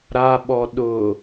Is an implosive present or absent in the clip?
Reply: present